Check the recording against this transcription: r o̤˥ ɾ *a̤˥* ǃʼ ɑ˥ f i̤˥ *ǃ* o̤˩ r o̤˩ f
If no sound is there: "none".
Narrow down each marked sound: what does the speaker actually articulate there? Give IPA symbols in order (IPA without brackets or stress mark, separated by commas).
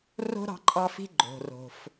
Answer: ɑ̤˥, ɡ͡ǃ